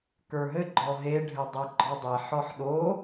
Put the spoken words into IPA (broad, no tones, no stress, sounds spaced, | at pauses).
k ə˞ ɦ ɘ ɡ͡ǃ ɔ ɦ e ɖʱ ɘ dˤ e ɡ͡ǃ ɔ dˤ e ħ ɔ ħ ɗ o